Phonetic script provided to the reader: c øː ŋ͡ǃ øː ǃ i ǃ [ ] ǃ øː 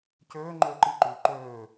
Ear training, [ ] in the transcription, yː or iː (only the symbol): yː